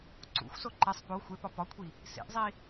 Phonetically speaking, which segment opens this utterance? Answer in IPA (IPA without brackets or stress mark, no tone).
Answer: ǀ